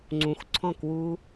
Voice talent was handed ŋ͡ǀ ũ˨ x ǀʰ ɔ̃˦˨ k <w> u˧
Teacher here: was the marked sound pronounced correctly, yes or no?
yes